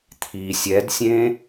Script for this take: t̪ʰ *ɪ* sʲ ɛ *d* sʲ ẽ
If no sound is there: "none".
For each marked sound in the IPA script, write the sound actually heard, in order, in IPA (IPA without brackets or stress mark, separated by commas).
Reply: i, d